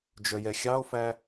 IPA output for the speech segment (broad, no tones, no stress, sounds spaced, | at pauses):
d͡ʒ œ j ɛ xʲ ɑ o̯ f æ